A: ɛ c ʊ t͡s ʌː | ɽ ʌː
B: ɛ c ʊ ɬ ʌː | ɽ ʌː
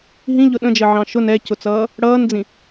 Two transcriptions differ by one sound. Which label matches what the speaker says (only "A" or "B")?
A